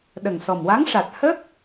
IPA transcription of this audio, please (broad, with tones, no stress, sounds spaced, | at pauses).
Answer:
ɗ ə˨˩ ŋ s ɔ˨˩ m w a˧˥ ŋ ʂ a˨˩ t̚ h ə˦˥ k̚